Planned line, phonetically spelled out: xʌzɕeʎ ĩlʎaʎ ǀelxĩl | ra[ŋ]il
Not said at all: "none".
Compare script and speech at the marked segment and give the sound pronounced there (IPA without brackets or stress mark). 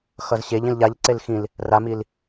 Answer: m